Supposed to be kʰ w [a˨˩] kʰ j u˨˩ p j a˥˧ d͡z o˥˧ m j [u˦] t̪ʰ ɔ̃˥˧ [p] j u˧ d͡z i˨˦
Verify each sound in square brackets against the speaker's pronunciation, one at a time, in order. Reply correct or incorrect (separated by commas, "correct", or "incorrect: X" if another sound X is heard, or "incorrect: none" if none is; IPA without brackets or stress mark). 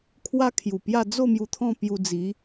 incorrect: a˦, incorrect: u˧, correct